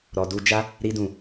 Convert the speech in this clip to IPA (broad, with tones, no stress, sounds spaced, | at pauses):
ɾ ɔ˧ d u˦ d͡ʒ a˦ | ɾ i˦ d ũ˦˨